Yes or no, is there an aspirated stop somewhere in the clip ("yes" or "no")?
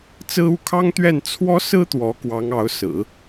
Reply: yes